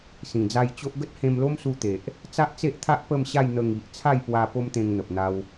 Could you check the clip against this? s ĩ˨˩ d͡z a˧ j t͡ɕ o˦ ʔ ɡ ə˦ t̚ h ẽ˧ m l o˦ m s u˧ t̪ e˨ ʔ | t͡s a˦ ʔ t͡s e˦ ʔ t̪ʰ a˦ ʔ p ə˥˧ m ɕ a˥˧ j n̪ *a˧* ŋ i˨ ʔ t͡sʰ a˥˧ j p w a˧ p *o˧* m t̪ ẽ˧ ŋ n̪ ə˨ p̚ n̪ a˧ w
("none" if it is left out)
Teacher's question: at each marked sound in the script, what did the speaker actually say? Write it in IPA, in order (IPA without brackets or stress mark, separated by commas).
ə˧, o˦